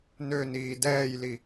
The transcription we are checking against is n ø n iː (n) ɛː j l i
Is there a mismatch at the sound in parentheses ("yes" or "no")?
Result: yes